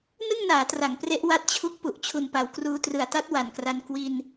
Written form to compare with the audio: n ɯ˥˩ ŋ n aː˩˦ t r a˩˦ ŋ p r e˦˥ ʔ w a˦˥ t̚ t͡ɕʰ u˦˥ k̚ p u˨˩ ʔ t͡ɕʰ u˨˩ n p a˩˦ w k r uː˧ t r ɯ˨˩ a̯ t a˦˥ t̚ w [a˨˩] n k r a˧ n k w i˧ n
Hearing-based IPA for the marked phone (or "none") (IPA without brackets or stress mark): a˨˩